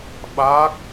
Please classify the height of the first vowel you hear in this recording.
low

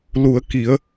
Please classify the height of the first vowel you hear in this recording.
high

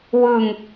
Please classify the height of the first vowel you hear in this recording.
high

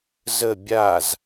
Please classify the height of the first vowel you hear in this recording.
mid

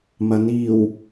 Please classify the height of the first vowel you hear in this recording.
low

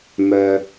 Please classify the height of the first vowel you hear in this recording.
mid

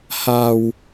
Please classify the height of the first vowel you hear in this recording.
low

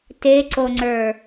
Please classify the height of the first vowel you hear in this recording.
mid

